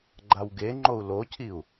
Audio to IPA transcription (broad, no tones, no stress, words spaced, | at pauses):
ɡ͡ǃawɡeŋ͡ǃou̯ locʰiu̯